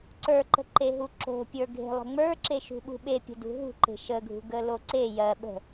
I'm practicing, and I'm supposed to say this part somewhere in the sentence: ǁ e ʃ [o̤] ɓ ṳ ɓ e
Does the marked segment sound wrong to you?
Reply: yes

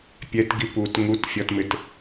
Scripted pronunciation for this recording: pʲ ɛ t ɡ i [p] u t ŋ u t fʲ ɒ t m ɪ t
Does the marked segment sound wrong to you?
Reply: no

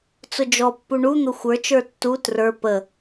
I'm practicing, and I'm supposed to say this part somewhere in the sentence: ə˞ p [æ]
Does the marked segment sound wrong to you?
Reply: yes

